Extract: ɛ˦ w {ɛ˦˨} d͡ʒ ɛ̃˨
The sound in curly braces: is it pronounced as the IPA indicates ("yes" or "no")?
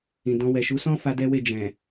no